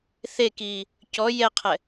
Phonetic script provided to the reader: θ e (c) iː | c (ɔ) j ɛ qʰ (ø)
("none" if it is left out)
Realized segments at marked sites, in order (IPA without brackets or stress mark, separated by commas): k, ɔ, ɛ